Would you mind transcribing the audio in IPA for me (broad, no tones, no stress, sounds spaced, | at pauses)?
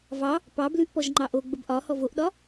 v ɑ | p ɑ b l ʉ ʔ p ɔ ʒ ŋ͡ǃ ɑ ʔ o ɡ͡b ə b ʔ ɒ h ɔ v o ʔ ɗ ɒ